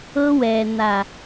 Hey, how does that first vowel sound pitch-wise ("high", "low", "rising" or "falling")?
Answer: high